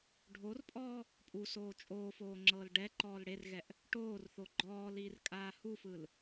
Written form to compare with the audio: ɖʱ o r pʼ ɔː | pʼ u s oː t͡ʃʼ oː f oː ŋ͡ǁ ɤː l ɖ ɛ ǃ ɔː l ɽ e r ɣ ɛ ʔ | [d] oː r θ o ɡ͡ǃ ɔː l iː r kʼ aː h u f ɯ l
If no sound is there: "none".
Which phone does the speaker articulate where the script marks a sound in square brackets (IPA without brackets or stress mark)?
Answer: ʈ